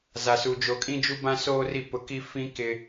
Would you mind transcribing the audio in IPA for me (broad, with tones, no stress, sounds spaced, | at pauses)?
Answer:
z a˨ s u˨ d͡ʒ o˨ kʼ ĩ˦ d͡ʒ u˦ b ã˦ s oː˦ r i˦˨ p ʊ˦ k i˦ f ĩ˦ k ɪ˦